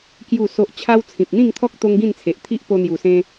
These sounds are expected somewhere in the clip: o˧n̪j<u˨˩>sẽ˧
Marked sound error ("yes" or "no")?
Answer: no